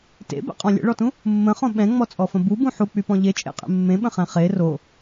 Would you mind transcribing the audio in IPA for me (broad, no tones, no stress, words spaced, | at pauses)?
tḛbɛ̰qʼɔ̃ lʲə̰ɭɔtũ | mːə̃χõ ɓɛ̃ŋ͡mɔt͡sʼɔfə̃ bubũ ħuk͡pypɔ̃ ʎet͡ʃʼḛqʼḛ mːẽɓə̃χɛ̃ χe ro